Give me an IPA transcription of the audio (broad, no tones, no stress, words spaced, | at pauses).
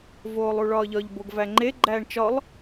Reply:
voːlˠuɭɒːʎɒʎ boɡvæŋ͡ǃe ɡ͡ǃæːɳt͡ʃɒlˠ